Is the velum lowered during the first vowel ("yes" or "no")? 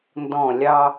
yes